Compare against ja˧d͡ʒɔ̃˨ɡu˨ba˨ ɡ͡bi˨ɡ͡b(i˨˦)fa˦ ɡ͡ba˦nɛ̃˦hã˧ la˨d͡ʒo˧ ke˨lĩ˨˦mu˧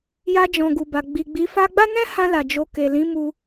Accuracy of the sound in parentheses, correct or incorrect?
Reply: correct